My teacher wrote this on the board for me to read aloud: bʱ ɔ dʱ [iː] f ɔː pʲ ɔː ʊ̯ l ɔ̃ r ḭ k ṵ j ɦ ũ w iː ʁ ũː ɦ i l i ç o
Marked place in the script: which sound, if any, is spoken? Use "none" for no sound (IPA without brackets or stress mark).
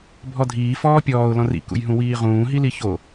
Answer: iː